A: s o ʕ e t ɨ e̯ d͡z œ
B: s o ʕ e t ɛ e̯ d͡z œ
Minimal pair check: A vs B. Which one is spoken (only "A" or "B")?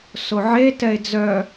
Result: B